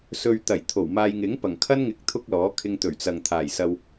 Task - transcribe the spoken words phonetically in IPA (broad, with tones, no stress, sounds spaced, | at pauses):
s ɵ˧ ɥ t̪ ɐ˨˩ j t̪ʰ o˨˩ w m aː˧ j ŋ ɪ˨˥ ŋ p ɐ˨˩ ŋ kʰ ɐ˥ n ŋ ɪ˨˥ k̚ t̪ʰ ʊ˥ k̚ l ɔː˨˥ kʰ ɪ˧ ŋ t̪ ɵ˨˩ ɥ t͡s ɐ˨ ŋ t̪ʰ aː˨˩ j s ɐ˧ w